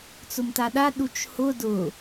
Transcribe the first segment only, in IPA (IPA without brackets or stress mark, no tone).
t͡s